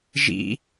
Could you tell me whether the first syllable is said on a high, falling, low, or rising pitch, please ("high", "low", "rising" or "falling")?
high